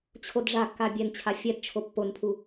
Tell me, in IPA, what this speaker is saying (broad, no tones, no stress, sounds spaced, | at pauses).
t͡ɕʰ o d ʐ a kː a bʲ ɛ n t͡ɕʰ a fʲ ɛ d t͡ʃʰ o pː o n pʰ u